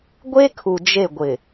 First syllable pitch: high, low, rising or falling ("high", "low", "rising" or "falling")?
high